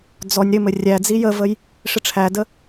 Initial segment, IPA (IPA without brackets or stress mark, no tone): d͡z